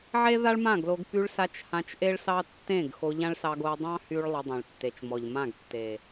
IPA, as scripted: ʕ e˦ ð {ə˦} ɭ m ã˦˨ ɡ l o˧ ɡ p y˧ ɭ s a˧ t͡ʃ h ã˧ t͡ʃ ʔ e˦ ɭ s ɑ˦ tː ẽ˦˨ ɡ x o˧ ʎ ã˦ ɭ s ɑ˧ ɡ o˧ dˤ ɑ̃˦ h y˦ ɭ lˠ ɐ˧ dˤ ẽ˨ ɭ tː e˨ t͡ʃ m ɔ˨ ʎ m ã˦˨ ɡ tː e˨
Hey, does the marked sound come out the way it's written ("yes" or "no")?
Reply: no